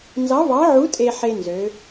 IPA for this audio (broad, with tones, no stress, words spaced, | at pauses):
nzɑ˧˥vɑ˧˥ʕu˧˥ tʼe˧ħe˧ nzø˧˥